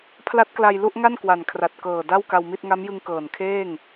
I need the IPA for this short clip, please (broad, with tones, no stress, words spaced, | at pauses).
pʰla˦˥t̚kla˧j lu˥˩ʔŋa˥˩n kwa˨˩nkʰra˨˩t̚kɤː˨˩da˥˩w ka˧wmi˥˩t̚ ŋa˦˥mjɯ˧ŋ kɤː˨˩nkʰeː˥˩ŋ